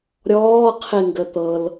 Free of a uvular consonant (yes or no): no